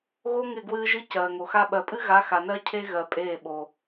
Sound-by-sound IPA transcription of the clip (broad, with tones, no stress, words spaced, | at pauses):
ɣo˦ŋɪ˦˨ɡwɨː˧ ʒɨ˦cɜː˨ŋo˨xa˦ ɓɜ˨pʼɨ˦ɣa˨˦xa˨ nɜ˦cʰe˦ɣɜ˨ pʼeː˦˨ɓo˨